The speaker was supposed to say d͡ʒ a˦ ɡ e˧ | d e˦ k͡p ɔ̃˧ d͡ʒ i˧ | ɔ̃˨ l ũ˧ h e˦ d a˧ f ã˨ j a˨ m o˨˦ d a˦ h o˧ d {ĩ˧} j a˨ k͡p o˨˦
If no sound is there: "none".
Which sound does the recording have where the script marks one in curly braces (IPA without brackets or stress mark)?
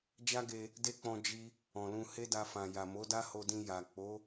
ĩ˧